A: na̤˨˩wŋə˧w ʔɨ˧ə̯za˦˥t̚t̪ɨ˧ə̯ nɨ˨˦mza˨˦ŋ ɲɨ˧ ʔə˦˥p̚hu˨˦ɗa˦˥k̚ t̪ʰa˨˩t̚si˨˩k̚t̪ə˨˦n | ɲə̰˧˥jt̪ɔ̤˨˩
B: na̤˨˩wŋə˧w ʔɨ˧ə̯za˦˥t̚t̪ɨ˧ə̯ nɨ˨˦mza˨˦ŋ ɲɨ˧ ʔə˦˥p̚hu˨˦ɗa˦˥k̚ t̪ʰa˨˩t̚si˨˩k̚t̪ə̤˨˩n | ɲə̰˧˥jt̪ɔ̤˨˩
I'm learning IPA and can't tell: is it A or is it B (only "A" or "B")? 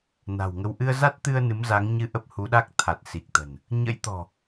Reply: B